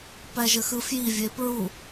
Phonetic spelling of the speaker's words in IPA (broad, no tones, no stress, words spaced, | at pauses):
pæʒəxɯfji vʲepɹu